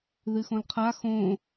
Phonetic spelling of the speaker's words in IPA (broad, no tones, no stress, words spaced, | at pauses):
ðɨxõlqʰa xõ